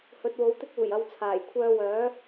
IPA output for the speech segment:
hɵ˨˥t̚wo˨˥wt̪ɪ˥k̚ uː˨˩jɐ˨˧w t͡sʰaː˨˩j kʷʰœː˧wœː˨˥

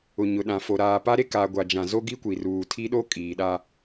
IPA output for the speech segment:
ʊ˨ɲʊ˨ɗã˨fo˨ ɾaː˨pa˦ ɾe˦ ka˨ɡʷa˨d͡ʒã˨ zo˦ɡi˦kʷi˨ruː˨ tʰi˦ɗo˦ kʼiː˨ɗa˦

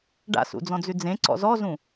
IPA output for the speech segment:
ɖa̰sṵd͡zɔ̃d͡zʉ d͡zẽǀɔ̰ zɔzũ

